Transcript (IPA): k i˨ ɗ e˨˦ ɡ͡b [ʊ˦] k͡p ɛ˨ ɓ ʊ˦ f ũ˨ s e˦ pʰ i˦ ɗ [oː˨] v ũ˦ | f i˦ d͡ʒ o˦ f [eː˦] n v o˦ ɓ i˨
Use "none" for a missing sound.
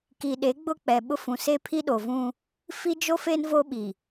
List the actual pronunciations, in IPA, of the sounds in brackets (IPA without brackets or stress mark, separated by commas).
ʊ˦, o˨, e˦